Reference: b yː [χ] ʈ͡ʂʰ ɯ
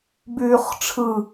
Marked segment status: correct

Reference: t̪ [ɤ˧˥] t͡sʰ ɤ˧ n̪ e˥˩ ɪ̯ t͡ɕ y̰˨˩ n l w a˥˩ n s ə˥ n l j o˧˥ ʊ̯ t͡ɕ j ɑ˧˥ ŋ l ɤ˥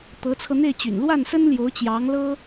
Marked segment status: correct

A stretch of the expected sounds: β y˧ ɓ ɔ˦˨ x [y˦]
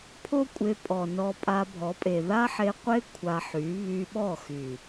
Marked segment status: incorrect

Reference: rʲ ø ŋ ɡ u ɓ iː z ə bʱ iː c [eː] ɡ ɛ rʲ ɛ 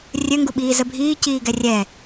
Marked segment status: incorrect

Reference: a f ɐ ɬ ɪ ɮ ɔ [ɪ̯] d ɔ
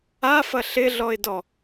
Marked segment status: correct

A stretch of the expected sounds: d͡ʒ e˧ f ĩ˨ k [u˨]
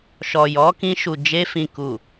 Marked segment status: correct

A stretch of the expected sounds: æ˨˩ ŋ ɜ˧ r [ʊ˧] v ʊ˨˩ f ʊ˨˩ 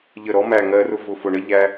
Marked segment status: correct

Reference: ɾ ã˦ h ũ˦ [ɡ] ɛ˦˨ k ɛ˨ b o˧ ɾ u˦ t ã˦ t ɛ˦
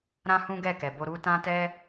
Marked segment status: correct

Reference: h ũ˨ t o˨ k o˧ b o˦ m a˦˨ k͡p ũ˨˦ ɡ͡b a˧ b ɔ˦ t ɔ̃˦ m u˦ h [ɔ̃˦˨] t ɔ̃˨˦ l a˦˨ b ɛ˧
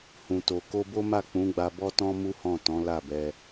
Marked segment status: correct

